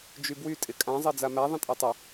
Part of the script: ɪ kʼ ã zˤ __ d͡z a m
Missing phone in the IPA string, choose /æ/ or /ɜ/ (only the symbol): ɜ